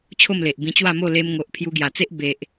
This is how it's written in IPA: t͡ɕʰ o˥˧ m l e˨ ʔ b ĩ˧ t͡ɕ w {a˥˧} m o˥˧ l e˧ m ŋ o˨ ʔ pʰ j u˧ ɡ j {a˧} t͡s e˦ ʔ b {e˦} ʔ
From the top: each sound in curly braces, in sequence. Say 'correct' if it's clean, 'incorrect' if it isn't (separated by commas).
correct, incorrect, incorrect